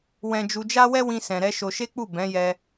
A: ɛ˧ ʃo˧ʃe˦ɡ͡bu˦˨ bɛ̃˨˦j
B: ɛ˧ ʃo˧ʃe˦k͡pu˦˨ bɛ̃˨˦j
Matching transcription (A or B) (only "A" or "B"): B